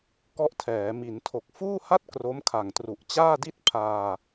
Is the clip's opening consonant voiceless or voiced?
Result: voiceless